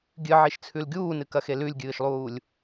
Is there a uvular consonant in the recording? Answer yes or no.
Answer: no